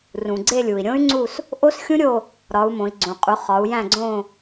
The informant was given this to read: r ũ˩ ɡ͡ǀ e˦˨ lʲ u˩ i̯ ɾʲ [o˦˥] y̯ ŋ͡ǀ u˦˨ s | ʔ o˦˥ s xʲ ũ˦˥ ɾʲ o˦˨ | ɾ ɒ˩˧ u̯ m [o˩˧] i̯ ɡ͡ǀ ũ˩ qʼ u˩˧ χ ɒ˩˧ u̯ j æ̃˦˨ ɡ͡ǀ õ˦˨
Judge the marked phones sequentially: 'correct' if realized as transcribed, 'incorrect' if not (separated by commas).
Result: incorrect, incorrect